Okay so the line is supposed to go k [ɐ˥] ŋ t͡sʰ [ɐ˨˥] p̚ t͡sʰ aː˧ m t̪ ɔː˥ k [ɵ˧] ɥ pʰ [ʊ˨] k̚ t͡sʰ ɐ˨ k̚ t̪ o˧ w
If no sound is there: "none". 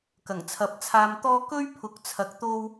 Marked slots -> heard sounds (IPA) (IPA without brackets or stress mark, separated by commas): ɐ˨˩, ɐ˨˥, ɵ˥, ʊ˨˥